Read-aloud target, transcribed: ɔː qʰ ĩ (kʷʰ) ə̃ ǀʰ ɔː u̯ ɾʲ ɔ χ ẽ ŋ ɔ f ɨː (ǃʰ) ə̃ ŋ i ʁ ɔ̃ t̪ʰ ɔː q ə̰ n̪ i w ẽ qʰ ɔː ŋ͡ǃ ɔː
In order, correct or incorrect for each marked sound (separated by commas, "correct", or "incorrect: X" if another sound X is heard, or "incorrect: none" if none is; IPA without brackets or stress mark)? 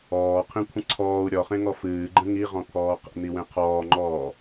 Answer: correct, incorrect: ɡ͡ǃ